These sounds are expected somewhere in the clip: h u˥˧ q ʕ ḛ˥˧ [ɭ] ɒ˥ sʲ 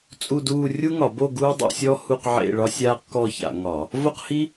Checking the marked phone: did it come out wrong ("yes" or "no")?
no